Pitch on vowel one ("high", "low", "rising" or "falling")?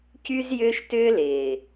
high